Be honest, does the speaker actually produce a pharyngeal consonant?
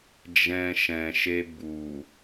no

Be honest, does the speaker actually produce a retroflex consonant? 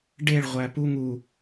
yes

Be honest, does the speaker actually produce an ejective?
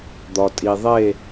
yes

